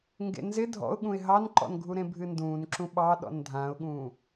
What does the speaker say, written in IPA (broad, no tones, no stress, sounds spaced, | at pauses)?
ŋ ɡ ḛ n z ɪ dʱ ɔ̰ ʊ̯ ɠ ũ ɪ̯ ɦ ɑ n ǃ ɔ̰ n ɡʱ u ɾ ẽ bʱ ɨ n d ũː n ǁ ũ ɓ ɑ ɗ ɔ̰ n dʱ ã ʊ̯ ɠ ũː